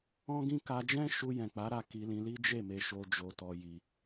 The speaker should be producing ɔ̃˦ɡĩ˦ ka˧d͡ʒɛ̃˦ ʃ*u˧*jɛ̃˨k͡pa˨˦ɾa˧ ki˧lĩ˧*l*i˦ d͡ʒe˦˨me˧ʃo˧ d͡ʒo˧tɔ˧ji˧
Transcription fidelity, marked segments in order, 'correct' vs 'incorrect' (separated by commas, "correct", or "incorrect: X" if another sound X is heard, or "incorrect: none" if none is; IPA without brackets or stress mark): correct, correct